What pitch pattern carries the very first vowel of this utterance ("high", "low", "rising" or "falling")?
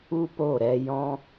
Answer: high